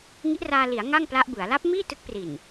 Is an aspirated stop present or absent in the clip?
absent